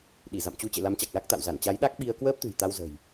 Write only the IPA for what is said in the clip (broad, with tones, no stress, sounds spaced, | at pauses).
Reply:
ɗ i˧˩ z a̰˧˨ m t͡ɕ u˨˦ t͡ɕ ḛ˧˨ l a˨˦ m t͡ɕ a˨˩ k̚ l a˦˥ k̚ t̪ a̰˧˨ w z a˧˩ n t͡ɕ a˨˦ j ɗ a˦˥ k̚ ɓ i˧ ə̯ k w əː˦˥ p̚ t̪ ɨ̤˨˩ j t̪ a˧ w z ə̤˨˩ j